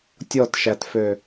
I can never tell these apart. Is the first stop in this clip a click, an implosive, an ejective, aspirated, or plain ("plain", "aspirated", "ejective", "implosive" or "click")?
plain